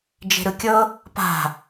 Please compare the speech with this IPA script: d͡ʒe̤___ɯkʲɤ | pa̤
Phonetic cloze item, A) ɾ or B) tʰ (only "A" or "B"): A